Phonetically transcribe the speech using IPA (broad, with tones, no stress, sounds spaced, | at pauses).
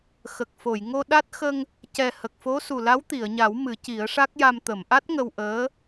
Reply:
x ə˨˩ k̚ f o˨˩˨ j ŋ o˧ ɗ a˦˥ t̚ x ə˧ ŋ | c ɛ˨˩ h ə˨˩ k̚ f o˧˥ s u˨˩ l a˧˥ w t̪ i˨˩˨ ə̯ ɲ a˨˩˦ w m ɨ˨˩˦ c i˨˩˦ ə̯ ʂ a˦˥ k̚ j a˧ m t̪ ə˨˩˨ m ʔ a˦˥ t̚ ŋ ə˧ w ʔ əː˧˥